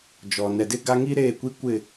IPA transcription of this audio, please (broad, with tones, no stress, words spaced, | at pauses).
d͡ʒɔ˨ nɛ˨dɪ˦ɡa˦ ŋi˦ ɾeː˦˨kʷi˦kʷɪ˦˨